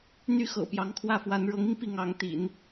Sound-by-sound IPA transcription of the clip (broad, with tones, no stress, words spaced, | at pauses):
n̪y˥ xɤ̰˨˩pjɑ˧˥ŋkʰwä˥˩fwa˧˥n ɻɤ˧˥ŋi˧ŋ pi˥˩ŋɑ˧˥ŋt̪ḭ˨˩˦n